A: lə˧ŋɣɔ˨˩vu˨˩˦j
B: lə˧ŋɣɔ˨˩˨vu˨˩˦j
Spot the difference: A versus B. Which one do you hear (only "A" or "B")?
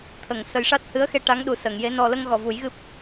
A